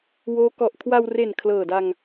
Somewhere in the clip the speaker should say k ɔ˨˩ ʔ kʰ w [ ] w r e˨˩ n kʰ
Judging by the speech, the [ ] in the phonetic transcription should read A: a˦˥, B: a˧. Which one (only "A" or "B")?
B